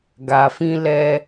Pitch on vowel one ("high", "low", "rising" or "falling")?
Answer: low